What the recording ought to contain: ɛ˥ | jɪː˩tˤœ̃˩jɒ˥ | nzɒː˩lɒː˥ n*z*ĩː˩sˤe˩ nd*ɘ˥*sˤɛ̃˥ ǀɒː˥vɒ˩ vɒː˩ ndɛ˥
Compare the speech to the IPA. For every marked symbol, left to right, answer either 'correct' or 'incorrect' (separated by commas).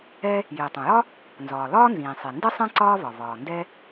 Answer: correct, correct